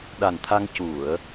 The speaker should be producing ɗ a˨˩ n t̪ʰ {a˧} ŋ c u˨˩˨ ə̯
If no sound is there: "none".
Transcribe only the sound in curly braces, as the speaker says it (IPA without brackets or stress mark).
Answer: a˧